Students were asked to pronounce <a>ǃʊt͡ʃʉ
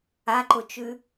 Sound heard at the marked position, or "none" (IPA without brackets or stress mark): a